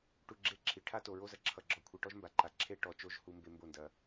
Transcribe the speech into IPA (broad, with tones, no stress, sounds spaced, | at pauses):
ʈ u˨ ɡ͡ǁ e˧ ǁʰ i˨ ʈʰ a˦ t o˨ ɹ o˦ z ɐ˨ ǁʰ ʌ˨ ɡ͡ǁ ɔ˨ kʷʰ i˨ ʈ ɔ˦ ʒ m b a˨ ǃ a˨ ǁʰ e˦ ʈ ɔ˨ t͡ʃ o˦ ʒ h u˧ m b e˧ m b o˦˨ n d ɐ˧